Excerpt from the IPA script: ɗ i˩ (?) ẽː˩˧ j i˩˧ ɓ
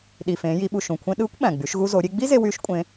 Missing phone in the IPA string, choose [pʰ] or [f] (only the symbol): f